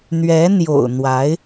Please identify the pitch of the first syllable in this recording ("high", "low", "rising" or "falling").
rising